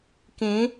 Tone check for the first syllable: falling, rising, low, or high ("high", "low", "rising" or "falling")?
rising